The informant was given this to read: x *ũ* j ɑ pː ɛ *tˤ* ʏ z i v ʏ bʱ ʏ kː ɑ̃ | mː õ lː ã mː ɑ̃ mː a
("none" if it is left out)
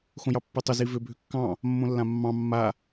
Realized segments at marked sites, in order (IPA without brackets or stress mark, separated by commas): õ, tˤ